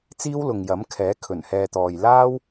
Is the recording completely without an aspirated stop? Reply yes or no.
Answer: no